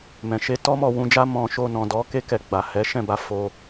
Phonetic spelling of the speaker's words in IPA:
m ɛ̃˨ ʃ e˧ t ɔ˦ m ɔ˦˨ w ũ˧ d͡ʒ a˦ m ɔ̃˧ ʃ o˧ n ɔ̃˨ d ɔ˨˦ k e˦ k ɛ˧ ɡ͡b a˨ h ɛ˨˦ ʃ ɛ̃˦˨ b a˨˦ f o˧

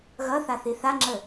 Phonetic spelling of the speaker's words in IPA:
ɣ ʌ θ a θ i θ a ŋ͡ǁ ə

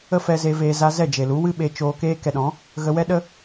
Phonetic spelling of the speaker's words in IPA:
ə˦ f ɛ˧ z e˧ v eː˧ z a˧ z ɛ˦˨ d͡ʒ e˨ l u˨˦ w ɨ˦ ɓ e˧ t͡ʃ oː˧ k eː˦ k ɛ˧ ɗ ɔ̃˨˦ | ɣ ə˧ w ɛ˦ ɗ ə˦

